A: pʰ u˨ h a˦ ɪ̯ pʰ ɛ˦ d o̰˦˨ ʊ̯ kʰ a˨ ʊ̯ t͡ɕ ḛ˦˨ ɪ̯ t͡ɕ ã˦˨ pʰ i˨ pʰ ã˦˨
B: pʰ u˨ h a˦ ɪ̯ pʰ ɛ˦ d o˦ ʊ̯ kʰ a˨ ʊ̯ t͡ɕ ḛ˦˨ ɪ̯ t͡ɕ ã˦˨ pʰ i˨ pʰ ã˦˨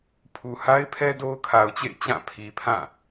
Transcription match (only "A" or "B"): B